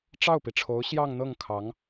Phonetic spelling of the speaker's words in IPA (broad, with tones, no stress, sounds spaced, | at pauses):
ʈ͡ʂ ɑ˥˩ ʊ̯ p i˩ ʈ͡ʂʰ o˧˥ ʊ̯ ɕ j ɑ˥˧ ŋ n̪ ɤ˥˩ ŋ kʰ ɑ˧˥ ŋ